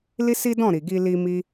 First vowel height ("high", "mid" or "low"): high